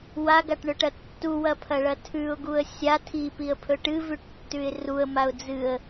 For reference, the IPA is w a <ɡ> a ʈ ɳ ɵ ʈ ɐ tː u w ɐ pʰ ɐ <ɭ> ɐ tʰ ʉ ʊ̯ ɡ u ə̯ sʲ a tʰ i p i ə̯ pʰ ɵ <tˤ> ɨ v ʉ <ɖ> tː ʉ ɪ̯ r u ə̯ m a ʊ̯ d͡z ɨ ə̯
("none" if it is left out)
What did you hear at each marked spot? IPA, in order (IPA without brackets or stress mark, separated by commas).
ɡ, ɭ, ʈ, ʈ